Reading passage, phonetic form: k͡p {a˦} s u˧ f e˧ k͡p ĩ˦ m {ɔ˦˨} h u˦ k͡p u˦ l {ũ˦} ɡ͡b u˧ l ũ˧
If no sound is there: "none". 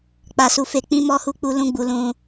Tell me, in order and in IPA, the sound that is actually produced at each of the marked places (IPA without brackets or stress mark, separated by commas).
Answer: a˧, ɔ˦, ũ˦